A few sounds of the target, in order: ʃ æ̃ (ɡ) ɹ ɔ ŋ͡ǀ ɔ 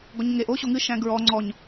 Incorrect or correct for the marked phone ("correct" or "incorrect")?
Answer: correct